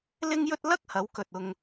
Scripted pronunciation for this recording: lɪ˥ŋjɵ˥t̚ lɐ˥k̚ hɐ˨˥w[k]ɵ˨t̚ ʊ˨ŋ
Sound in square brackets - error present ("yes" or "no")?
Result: no